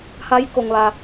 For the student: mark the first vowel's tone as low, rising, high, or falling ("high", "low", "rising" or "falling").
rising